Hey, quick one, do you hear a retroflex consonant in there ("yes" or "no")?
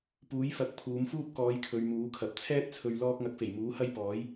no